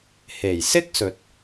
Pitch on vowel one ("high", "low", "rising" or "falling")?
low